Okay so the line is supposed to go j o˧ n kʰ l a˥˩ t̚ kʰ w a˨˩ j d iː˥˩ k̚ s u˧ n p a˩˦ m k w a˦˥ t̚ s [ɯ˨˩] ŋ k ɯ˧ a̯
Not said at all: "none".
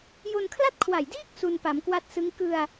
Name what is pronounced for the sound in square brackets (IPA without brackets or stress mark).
ɯ˦˥